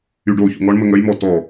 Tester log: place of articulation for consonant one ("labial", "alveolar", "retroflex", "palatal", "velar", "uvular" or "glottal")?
retroflex